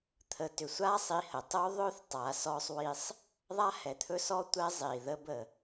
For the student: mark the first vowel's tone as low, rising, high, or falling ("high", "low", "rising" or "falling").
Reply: low